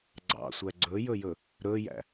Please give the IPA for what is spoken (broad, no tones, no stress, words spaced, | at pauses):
ɡ͡ǀɑ̰sʷæ ɡ͡ǀɵjɵjɵ | ɾɵjæ̰